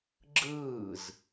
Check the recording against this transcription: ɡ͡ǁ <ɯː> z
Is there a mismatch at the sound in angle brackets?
no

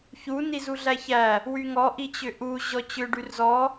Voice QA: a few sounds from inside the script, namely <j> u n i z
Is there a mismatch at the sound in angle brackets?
yes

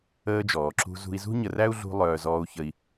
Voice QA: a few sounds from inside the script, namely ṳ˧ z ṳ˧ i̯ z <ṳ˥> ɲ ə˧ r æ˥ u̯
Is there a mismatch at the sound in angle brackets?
no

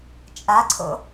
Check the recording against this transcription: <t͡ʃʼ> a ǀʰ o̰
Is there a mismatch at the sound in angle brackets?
no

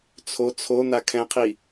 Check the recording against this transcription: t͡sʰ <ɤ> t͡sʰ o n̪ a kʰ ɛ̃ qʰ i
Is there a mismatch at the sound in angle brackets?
yes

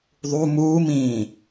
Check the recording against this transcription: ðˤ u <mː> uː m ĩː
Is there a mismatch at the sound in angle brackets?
yes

